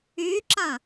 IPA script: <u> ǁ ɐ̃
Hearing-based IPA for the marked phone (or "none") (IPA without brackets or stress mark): y